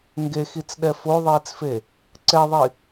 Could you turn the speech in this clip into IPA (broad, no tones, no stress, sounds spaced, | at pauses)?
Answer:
ŋ ɡ e x i t͡s ɗ ɛ f o ðˤ iː t͡s f e | ǀ ɛ ðˤ i